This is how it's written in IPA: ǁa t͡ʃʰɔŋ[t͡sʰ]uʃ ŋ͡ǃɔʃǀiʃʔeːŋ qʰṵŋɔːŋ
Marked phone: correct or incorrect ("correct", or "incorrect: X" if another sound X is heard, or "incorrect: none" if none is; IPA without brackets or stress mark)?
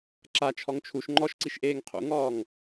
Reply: incorrect: t͡ʃʰ